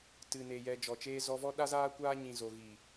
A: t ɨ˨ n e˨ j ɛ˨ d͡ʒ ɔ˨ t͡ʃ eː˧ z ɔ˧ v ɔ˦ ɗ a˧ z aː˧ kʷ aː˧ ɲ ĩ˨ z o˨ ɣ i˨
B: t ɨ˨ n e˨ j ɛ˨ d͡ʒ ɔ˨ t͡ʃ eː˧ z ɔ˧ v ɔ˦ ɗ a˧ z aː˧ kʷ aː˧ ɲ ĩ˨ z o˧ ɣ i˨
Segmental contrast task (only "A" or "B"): A